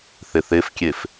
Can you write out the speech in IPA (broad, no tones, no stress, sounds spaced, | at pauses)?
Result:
θ e θ e f kʲ e f